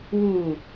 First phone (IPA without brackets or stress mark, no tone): w